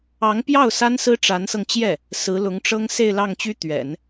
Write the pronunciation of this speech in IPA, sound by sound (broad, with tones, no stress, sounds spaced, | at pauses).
ɑ˧˥ ŋ p j ɑ˥˩ ʊ̯ s a˥ n s ɹ̩˥ ʈ͡ʂ a˧˥ n s ɤ˧ ŋ t͡ɕ j ɛ˥˩ | s ɹ̩˧˥ l ʊ˧˥ ŋ ʈ͡ʂ ɤ˥ ŋ s e˥˧ ɪ̯ l ɑ˥˩ ŋ t͡ɕ y˥ t̪ ɥ ɛ̰˨˩˦ n